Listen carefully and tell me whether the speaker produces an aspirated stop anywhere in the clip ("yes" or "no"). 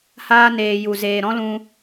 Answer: no